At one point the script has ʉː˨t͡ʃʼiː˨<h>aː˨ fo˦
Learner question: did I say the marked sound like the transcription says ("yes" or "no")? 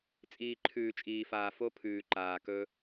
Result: no